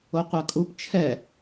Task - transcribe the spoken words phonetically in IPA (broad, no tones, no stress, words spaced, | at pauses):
oqʷakʼup t͡ʃʰɛ